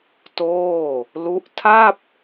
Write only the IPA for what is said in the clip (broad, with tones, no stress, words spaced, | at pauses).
toː˥˩ | lu˦˥ʔ tʰa˥˩p̚